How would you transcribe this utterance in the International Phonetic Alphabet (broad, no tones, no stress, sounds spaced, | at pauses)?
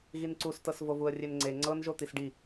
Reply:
ɣ i n ǀ u s t ɤ s v o v u ə̯ rʲ e n ŋ͡ǀ e ŋ͡ǀ ɤ n ʒ o t̪ i s ɖ i